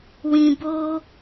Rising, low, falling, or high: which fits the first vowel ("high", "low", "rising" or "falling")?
low